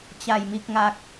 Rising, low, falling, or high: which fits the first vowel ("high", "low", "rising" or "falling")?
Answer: low